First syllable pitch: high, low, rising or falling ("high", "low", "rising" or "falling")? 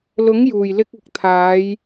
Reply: rising